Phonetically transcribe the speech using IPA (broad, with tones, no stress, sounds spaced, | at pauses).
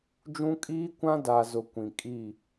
d͡ʒ ũ˦ kʼ iː˦ kʷ ã˦ d a˨ z ʊ˨ kʷ ĩ˨ kʼ i˦˨